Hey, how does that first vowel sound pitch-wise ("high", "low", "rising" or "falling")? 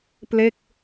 falling